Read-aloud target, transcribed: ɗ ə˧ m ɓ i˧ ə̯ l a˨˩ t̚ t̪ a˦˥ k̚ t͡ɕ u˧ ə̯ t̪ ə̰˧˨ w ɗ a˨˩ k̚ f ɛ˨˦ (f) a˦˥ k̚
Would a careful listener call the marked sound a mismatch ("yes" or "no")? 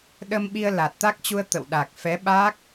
yes